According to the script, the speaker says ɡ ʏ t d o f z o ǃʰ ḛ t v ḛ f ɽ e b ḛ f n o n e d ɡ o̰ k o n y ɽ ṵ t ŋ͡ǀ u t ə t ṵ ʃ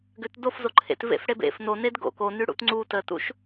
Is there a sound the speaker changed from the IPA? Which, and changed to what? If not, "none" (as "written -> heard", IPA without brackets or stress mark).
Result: none